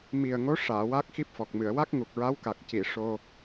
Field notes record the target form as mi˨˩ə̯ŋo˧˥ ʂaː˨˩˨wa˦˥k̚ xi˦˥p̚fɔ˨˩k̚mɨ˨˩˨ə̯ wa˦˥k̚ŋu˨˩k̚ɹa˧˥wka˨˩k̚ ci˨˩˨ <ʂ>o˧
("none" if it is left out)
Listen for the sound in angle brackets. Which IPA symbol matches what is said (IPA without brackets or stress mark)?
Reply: ʂ